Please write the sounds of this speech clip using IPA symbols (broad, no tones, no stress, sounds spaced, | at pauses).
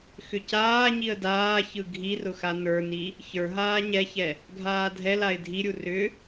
x ʏ c aː ɲ i ə̯ d aː ç ɯ ɡʱ i r ʊ x a n ə˞ n i | ç ə˞ ɦ aː ɲ ɛ ç ɛ | ɡʱ aː dʱ ɛ l a ɪ̯ dʱ i ɾʲ u r ʏ